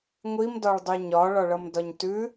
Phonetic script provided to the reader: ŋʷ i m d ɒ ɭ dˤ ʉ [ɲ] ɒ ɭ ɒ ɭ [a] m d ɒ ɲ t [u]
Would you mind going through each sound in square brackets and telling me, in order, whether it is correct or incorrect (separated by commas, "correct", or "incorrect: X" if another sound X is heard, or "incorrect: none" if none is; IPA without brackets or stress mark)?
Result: correct, incorrect: ʌ, incorrect: ʉ